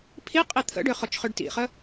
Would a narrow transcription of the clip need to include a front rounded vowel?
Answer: yes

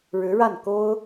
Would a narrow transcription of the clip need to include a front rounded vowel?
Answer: no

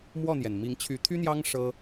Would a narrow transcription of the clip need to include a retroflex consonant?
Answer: yes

